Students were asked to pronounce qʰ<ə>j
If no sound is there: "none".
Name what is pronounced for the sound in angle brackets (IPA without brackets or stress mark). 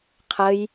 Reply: ə